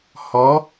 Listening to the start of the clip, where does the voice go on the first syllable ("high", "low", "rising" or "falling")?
rising